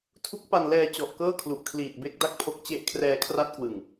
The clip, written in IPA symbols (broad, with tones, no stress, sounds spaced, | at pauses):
tʰ u˦˥ k̚ p a˧ n l ɛː˧ t͡ɕ ɔ˨˩ ʔ k ɤː˥˩ kʰ l u˨˩ ʔ kʰ l iː˨˩ t̚ b e˦˥ k̚ d a˥˩ k̚ pʰ o˦˥ k̚ t͡ɕ e˦˥ ʔ kʰ r ɛː˧ kʰ r a˦˥ t̚ k w ɯ˨˩ ŋ